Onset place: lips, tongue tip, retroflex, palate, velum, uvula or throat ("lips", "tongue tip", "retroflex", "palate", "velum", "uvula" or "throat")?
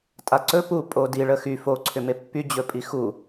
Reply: tongue tip